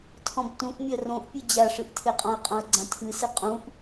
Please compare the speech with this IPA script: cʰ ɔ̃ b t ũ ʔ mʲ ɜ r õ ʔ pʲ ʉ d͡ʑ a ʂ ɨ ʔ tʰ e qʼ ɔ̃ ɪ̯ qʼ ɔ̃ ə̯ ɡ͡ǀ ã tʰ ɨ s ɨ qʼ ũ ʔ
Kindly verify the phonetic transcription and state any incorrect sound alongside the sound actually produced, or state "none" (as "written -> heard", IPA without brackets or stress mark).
cʰ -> tʰ